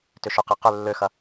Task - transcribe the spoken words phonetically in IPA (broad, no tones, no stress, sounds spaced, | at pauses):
t ʏ ʃ ʏ q i q ʏ lː ø x ɐ